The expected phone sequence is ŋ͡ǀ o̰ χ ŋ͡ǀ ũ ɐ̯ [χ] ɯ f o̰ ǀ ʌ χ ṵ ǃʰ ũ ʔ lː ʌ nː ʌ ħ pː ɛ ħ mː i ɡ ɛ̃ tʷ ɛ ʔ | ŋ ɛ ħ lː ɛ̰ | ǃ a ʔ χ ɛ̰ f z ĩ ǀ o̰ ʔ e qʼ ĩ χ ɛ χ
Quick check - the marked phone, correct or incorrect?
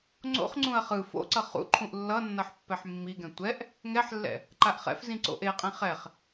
correct